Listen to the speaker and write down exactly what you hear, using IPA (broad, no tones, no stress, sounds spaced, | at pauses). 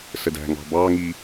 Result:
s ə d æ̤ ŋ ɑ̤ b ɑ ŋ i